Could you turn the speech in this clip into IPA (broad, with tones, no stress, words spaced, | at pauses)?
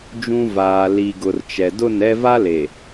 d͡ʒũ˦ vaː˨li˨ɡʊ˨r t͡ʃɛ˨ dʊ˦˨nɛ˦ va˦le˨